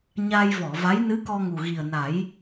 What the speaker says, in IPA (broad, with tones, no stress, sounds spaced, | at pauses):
ɲ a˧ j v ɔ˨˩˨ v a˧˥ j n ɨ˧˥ k ɔ˧ ŋ u˨˩ ɣ i˨˩ ə̯ n a˨˩˦ j